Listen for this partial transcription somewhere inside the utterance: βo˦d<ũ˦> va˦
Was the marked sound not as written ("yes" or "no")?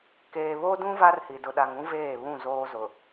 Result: no